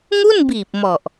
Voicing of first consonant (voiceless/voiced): voiced